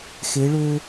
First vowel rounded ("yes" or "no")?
no